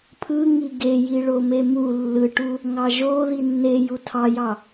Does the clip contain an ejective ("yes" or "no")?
no